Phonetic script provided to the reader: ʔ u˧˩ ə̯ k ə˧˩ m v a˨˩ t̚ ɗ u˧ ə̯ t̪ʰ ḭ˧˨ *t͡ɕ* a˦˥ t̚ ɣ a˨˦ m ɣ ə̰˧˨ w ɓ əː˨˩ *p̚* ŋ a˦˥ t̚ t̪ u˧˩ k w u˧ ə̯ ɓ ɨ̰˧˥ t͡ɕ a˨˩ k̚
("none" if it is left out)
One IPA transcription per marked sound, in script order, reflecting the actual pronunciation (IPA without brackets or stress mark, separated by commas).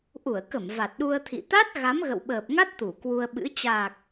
t̪, p̚